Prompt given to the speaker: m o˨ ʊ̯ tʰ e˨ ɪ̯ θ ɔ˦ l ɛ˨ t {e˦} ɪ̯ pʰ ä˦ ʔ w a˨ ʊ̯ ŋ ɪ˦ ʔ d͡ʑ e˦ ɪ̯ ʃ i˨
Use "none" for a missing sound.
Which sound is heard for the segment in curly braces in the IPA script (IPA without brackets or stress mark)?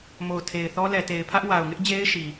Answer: e˨